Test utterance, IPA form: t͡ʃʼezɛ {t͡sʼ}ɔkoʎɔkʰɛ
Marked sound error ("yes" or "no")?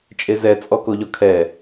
no